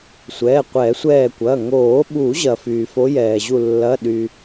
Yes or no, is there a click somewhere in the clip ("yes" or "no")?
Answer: no